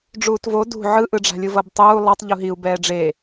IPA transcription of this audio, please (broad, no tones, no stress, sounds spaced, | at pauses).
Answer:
ɖ͡ʐ uː t v o d ṳ ʕ ɯ ʔ ɯ ɖ͡ʐ a̤ lʲ ɯ v ʌ b tˤ uː lˠ ʌ tˤ ʎ u ɦ i u̯ b ɛː ɖ͡ʐ e